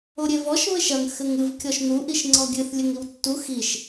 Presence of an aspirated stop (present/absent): absent